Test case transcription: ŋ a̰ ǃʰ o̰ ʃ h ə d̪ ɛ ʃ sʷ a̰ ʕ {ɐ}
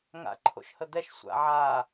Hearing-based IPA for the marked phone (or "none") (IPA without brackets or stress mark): a